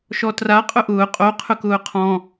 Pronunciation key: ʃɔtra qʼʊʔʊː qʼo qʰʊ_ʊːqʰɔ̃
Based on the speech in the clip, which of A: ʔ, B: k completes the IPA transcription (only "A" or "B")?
B